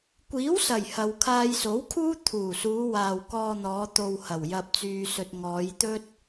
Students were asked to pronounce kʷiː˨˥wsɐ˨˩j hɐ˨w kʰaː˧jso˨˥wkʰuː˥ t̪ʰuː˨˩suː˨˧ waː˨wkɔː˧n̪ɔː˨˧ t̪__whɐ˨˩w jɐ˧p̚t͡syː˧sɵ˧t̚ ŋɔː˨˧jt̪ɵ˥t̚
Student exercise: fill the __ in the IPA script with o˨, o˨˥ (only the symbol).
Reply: o˨